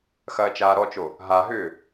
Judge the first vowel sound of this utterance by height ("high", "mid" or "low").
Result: low